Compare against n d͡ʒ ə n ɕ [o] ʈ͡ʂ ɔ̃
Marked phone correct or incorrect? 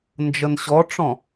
incorrect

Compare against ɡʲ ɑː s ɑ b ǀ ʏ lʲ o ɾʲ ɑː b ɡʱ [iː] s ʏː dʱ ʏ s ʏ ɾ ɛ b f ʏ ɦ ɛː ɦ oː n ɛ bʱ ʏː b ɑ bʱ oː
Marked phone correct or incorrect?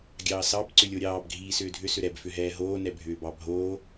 correct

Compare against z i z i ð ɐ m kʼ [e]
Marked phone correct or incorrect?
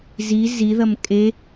correct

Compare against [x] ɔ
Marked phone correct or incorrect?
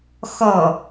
correct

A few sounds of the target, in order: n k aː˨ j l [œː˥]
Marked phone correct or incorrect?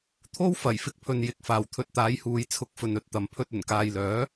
incorrect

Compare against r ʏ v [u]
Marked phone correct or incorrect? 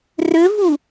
correct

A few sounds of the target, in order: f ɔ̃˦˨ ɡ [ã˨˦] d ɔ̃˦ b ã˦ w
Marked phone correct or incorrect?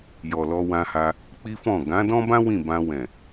correct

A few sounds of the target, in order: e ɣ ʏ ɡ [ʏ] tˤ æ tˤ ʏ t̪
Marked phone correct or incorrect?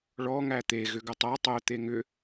correct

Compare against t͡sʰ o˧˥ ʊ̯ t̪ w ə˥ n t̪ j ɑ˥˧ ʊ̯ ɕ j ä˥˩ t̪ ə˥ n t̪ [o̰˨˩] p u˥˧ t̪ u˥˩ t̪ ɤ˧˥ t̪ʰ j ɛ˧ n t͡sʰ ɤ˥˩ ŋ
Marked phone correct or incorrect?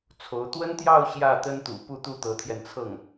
incorrect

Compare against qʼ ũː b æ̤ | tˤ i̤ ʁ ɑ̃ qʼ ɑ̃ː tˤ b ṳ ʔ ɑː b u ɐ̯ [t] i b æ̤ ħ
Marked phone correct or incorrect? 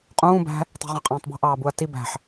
correct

